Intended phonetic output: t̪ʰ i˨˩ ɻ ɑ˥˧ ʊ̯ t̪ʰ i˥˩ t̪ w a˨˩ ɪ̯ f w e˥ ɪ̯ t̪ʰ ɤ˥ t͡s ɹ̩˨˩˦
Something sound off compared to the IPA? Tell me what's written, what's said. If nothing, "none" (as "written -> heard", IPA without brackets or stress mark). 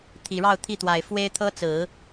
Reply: none